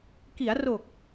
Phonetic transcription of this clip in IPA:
k i˩˦ a̯ r o˨˩ k̚

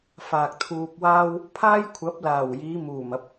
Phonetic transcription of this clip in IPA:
f aː˨ k̚ t̪ʰ uː˧ p̚ w aː˥ w | pʰ aː˥ j kʷʰ ɐ˨˥ p̚ l aː˨˩ w j iː˨˧ m uː˨˩ m ɐ˨ p̚

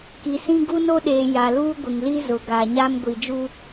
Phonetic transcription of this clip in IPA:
k i˨ s ĩ˦ ɡ u˦ n o˦ ɗ eː˨ j a˨ l uː˦ ɡʷ ɪ˨ ŋ l i˦ z ʊ˨ ɡ a˨ ɲ a˦ m ɡʷ i˨ d͡ʒ u˦

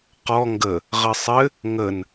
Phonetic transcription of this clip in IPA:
q ɔ ŋ ɡ ə | ʁ ɘ sˤ ɘ | ŋ ə n

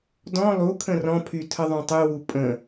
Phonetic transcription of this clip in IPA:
d ɔ̃ lˠ u kʰ ə̃ r ɔ̃ pʰ y tʰ ə ðˤ ũ tˤ y w u pʼ ə̃

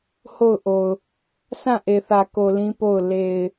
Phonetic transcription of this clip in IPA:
h o˦˨ ʊ̯ ʔ o˨ ʊ̯ | sʰ ã˦˨ ʔ e˨ θ ä˨ k o˨ l ĩ˦ p o˦˨ ʊ̯ l e˨ ɪ̯

